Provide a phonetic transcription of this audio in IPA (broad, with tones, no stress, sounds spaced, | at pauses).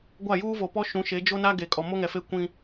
ɡʷ a˦˨ j uː˦ v o˨ p ɔ˦ ʃ ũ˨˦ ʃ e˨˦ d͡ʒ o˦ n a˦ ɡ e˨ kʼ ɔ˨ m o˦ ŋ ɛ˨ f e˦ kʷ ĩ˦